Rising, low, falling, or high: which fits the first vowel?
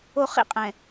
high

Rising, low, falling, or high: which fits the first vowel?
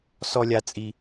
high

